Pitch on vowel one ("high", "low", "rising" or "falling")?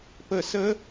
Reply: falling